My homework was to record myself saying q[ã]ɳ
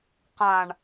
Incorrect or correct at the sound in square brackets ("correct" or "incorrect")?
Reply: correct